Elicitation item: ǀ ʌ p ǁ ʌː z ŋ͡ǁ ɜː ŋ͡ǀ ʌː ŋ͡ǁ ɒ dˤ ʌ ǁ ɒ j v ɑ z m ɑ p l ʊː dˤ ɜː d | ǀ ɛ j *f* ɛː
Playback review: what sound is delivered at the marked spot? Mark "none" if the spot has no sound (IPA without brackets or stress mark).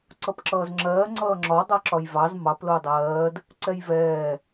v